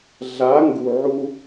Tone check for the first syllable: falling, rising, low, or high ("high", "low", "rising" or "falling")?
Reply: rising